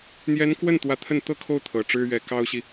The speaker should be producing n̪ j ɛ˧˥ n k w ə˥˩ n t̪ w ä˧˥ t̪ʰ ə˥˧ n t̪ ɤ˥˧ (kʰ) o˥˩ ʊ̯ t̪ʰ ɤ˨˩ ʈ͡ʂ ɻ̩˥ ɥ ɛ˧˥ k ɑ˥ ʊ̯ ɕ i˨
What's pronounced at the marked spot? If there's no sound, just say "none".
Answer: kʰ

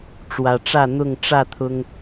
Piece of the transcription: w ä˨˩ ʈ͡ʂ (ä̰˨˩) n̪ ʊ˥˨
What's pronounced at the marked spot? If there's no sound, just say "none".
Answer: ä˥˨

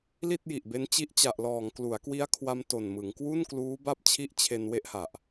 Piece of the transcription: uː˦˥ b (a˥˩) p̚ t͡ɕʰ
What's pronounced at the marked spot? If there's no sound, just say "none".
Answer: a˥˩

